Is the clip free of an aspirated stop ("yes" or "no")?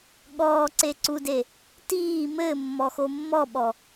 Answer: yes